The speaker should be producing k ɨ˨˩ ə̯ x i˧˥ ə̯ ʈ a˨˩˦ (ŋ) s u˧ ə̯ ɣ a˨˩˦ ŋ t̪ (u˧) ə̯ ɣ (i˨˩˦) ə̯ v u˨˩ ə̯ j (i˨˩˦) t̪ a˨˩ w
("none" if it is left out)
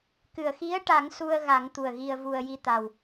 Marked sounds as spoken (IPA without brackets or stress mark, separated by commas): ŋ, u˨˩, i˧, i˧˥